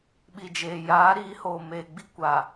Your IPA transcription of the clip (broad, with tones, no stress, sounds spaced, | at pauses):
ɓ i˨ d͡ʒ eː˨ j aː˨˦ ɾ iː˨˦ h oː˨ m eː˨ ɡ͡b i˦ kʷ a˨